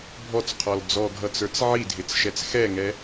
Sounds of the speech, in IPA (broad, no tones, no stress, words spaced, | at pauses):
bʱɔt͡sqʰɔl d͡zɔɡʱʌt͡sə˞t͡s ʕidʱɪt͡sʃɛt͡s xɛŋɛ